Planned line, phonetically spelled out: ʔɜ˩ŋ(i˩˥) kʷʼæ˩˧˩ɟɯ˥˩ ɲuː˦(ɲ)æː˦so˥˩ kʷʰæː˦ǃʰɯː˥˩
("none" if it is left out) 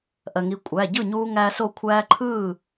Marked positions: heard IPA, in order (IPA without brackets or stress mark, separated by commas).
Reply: i˩˥, ŋ